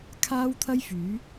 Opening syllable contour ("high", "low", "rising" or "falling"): high